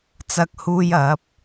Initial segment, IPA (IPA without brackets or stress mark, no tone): t͡s